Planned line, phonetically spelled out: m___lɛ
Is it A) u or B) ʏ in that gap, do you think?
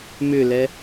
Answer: B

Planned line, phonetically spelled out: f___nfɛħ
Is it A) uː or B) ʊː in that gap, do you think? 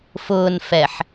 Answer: B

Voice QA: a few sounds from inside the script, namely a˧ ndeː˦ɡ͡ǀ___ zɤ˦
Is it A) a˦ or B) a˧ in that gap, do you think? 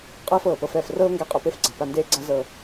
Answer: A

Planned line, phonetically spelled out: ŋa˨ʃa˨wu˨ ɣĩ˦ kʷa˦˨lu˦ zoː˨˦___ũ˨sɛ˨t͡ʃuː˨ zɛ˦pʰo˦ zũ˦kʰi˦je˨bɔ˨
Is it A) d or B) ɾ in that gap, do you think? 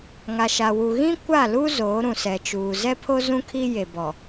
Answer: B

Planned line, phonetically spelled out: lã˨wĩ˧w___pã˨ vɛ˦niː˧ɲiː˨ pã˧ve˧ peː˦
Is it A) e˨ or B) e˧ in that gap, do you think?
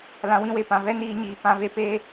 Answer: A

